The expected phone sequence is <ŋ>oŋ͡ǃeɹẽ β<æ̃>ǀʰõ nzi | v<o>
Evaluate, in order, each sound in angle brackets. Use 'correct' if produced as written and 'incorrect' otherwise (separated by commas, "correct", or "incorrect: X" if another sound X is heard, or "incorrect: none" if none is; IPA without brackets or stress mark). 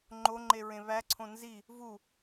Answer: incorrect: ŋ͡ǃ, incorrect: æ, incorrect: u